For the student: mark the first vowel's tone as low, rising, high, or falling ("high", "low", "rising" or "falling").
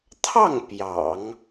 falling